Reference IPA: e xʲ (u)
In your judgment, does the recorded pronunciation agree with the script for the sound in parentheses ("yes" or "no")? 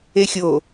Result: no